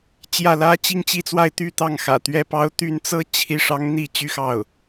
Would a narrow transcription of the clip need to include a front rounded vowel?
yes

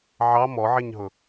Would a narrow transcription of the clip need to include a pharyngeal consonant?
yes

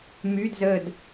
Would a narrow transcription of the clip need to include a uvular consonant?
no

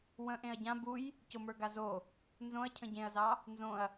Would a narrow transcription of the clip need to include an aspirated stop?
yes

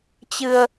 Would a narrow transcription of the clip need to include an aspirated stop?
no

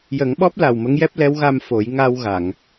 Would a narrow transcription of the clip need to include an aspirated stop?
no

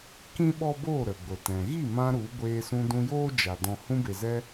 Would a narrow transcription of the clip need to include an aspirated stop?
no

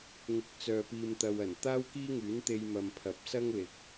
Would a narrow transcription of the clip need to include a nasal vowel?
no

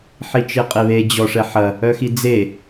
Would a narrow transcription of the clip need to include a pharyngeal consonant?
yes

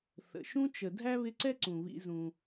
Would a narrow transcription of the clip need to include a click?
yes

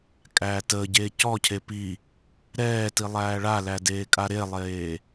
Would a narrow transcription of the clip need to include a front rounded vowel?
no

